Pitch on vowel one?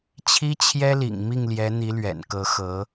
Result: high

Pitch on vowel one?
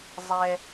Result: high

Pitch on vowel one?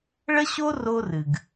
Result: high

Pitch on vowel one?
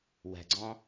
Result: low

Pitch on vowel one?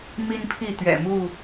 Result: high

